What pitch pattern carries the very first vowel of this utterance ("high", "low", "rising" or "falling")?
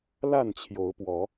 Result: falling